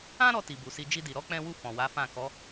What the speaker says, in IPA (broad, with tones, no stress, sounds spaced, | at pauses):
ã˦ ɾ ɔ˧ t i˨ b u˨ s i˧ d͡ʒ i˧ d i˨ ɾ ɔ˨˦ k͡p ɛ̃˧ w u˧ f ɔ̃˨ w a˨˦ f ã˦˨ k ɔ˨˦